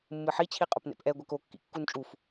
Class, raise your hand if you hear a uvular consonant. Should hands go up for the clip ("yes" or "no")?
yes